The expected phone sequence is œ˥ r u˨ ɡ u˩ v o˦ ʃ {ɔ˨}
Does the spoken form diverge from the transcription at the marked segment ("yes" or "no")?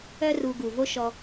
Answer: no